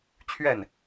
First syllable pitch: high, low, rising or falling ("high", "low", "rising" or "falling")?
falling